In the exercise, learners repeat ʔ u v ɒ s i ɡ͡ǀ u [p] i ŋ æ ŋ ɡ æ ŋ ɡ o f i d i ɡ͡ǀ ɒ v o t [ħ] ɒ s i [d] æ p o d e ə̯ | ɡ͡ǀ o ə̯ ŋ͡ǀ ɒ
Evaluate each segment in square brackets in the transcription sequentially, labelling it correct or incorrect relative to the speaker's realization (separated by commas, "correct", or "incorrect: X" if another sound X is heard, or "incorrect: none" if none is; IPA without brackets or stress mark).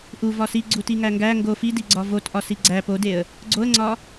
incorrect: t, incorrect: ʔ, incorrect: ɡ͡ǀ